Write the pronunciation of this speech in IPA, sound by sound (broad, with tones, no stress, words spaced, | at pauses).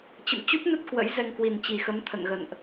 t͡ɕə̰˧˨m t͡ɕu˦˥p̚nə˦˥t̚ kwə̰˧˥j zɛ˧ŋkwi˨˩nt͡ɕi˨˩xə˨˦m t̪ʰə̰˧˨nɣə̰˧˨nʔ